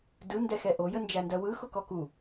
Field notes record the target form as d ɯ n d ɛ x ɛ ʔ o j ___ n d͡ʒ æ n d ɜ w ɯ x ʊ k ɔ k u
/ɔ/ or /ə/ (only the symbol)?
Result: ə